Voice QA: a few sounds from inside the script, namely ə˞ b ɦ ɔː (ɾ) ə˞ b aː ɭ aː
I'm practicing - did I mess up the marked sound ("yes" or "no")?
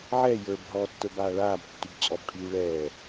yes